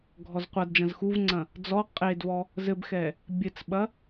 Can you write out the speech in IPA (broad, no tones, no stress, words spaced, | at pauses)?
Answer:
ɡʱɔzqʷɐdd͡ʒɐ̃z xuvŋ͡ǀɐ̃ | d͡zɔ qʼedvɔ | zɘbxɛ | bʲɘt͡sɓɐ